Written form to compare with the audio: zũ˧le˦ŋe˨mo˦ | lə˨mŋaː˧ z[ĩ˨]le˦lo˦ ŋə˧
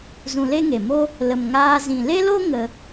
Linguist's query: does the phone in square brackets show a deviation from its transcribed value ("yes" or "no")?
no